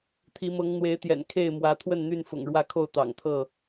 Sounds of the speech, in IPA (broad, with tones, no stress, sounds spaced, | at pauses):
t̪ʰ i˨˦ m ɤ˨˦ ŋ n̪ w e˨˦ ɪ̯ t̪ j ɛ̰˨˩ n kʰ e˥˨ ɪ̯ m w ä˨˦ t̪ʰ w ə˥˨ n n̪ y˥˨ n f ʊ̰˨˩ ŋ ɻ w ä˦ kʰ o˥˨ ʊ̯ t̪ ɑ̰˨˩ ŋ t̪ʰ ɤ˥˨